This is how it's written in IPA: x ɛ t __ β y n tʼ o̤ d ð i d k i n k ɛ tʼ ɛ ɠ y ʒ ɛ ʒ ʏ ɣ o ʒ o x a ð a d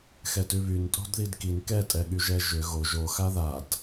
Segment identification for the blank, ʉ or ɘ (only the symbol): ʉ